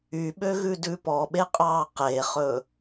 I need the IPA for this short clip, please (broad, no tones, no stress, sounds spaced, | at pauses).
y ɓ ø ɣ ʉ d ʉ p ɔ ɓ e qʼ ɑː q e χ ɵː